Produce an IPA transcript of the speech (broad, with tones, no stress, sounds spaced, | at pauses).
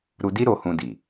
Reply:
ɾ u˧ d i˦ ɾ o˧ h ũ˧ d i˨